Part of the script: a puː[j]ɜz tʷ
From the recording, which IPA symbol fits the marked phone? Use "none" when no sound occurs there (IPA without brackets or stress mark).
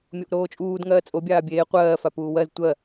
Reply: w